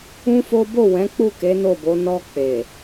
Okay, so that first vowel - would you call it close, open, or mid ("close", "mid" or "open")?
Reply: close